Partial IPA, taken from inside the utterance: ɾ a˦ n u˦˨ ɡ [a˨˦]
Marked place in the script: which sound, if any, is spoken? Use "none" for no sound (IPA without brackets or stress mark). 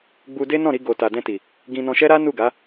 a˨˦